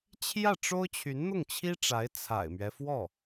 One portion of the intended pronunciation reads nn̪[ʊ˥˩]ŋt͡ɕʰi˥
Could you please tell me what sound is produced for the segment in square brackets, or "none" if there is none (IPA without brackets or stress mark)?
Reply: ʊ˥˩